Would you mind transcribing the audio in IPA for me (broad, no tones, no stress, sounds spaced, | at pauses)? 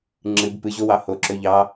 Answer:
ŋ͡ǁ ɨ b p ɨ ʑ o w ɑ h o ǁ ø ʎ ɑ